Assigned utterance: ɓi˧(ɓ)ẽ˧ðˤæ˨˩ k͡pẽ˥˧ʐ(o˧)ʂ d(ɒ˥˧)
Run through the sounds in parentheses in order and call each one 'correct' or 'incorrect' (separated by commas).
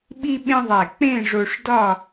correct, correct, correct